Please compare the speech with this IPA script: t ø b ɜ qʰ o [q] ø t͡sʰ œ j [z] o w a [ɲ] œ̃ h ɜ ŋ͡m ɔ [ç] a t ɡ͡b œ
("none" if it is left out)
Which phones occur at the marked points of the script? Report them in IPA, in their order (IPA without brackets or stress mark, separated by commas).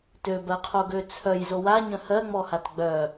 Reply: ɡ, z, ɲ, h